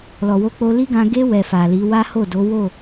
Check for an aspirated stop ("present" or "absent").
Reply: absent